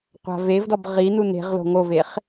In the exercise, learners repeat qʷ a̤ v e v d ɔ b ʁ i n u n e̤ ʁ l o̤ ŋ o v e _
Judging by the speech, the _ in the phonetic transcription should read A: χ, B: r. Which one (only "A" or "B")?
A